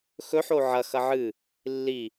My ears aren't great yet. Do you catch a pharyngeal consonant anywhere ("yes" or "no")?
yes